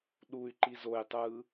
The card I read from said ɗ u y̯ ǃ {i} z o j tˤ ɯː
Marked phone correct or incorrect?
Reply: correct